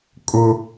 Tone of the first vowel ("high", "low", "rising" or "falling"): high